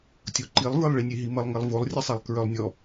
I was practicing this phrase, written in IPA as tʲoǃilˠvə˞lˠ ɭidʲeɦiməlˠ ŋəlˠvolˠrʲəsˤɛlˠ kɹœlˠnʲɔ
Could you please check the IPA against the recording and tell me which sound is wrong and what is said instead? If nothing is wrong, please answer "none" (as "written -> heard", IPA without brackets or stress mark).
dʲ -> nʲ